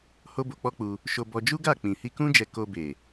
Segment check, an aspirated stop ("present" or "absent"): absent